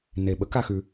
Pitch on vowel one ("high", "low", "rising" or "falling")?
low